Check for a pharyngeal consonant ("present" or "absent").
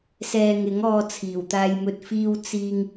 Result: absent